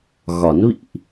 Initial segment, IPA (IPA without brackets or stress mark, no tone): ɣ